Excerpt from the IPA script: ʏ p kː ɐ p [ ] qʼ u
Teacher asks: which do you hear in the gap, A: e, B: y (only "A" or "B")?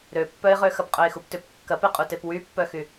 A